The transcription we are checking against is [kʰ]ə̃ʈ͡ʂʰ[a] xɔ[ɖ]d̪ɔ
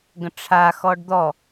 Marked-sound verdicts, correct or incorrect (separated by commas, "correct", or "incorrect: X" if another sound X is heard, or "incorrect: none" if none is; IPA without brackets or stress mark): incorrect: ɡ, correct, correct